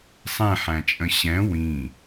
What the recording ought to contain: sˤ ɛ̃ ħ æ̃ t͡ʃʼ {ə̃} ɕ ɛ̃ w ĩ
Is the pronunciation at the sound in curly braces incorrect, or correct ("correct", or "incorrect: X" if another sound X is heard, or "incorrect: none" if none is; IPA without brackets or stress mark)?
correct